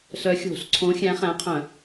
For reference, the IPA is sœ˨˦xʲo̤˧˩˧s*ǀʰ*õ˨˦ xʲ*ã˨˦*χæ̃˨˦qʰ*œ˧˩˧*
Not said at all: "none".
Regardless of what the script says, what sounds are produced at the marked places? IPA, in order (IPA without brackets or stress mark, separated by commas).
ǀʰ, æ̃˨˦, œ̃˧˩˧